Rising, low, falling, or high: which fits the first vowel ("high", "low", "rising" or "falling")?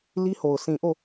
high